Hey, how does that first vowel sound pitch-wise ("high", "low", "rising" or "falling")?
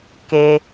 low